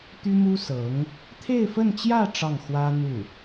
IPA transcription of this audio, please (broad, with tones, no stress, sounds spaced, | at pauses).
t̪ y˥ m u˥ s ɤ˧˥ ŋ | t̪ʰ e˥˧ ɪ̯ f ə˥˧ n t͡ɕ j ä˥˧ ʈ͡ʂ ɑ˥˩ ŋ x w ä˥ n̪ u˥˩